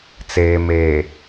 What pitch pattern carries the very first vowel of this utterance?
low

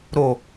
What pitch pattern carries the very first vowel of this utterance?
low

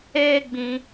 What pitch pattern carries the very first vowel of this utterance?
high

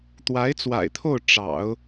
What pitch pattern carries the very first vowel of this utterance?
rising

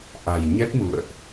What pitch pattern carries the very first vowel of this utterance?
low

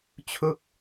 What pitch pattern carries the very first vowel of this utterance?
falling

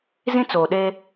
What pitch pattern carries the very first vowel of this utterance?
high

